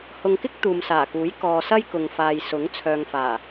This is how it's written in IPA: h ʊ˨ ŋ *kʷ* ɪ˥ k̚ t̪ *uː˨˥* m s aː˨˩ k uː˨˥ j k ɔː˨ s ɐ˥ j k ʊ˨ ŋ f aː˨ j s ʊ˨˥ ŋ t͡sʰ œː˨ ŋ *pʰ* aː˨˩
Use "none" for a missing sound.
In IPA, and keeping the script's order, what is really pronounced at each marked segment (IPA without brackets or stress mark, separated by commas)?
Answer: k, uː˨, f